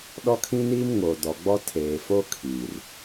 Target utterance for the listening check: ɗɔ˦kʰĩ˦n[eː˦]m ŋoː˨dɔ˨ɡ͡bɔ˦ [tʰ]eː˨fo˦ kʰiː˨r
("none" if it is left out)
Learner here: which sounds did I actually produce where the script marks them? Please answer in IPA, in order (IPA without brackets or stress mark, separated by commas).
iː˦, tʰ